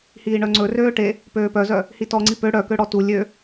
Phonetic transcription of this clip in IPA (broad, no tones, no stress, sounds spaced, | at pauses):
h iː ɳ œ ŋ͡ǀ ɵ r øː ʈ e | p øː p œ z œ | h i t ɔ ŋ͡ǀ i p ø ɽ œ k ø ɽ ɔ t u lʲ ø